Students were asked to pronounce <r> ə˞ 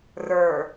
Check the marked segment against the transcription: correct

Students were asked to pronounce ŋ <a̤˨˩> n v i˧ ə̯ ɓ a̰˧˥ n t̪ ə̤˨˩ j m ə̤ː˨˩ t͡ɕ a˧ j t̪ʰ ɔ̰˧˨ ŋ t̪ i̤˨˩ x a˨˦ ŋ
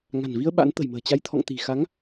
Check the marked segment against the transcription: correct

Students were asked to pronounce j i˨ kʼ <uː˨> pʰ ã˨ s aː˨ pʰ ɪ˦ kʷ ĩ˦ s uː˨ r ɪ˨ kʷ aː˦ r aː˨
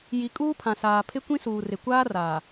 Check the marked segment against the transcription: incorrect: uː˦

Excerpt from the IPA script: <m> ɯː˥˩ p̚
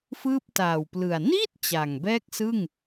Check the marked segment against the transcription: incorrect: f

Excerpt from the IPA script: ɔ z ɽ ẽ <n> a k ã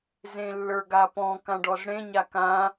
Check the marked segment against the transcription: incorrect: ɲ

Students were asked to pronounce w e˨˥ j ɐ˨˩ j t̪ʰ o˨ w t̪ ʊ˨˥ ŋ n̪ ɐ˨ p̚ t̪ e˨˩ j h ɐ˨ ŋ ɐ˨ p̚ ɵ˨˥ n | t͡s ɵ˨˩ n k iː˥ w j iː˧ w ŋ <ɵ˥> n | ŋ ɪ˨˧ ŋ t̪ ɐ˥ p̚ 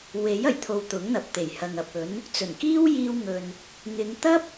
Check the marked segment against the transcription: incorrect: ɵ˨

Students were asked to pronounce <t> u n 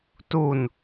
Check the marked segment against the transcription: correct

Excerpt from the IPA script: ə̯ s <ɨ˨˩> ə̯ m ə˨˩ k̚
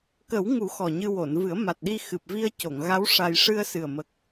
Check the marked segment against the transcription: correct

